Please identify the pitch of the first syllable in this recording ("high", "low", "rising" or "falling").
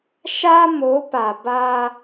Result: high